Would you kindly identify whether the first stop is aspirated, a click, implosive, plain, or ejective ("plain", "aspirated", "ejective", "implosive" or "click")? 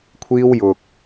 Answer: aspirated